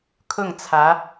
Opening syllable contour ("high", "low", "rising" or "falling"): falling